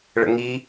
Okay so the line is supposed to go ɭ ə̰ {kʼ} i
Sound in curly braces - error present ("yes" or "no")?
yes